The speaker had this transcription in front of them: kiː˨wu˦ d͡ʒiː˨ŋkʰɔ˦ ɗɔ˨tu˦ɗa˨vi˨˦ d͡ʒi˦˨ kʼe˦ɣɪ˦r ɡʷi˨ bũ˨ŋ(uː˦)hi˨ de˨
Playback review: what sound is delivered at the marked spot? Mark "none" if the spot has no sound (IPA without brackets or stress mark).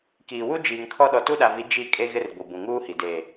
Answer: uː˦